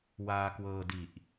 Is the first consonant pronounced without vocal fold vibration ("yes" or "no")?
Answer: no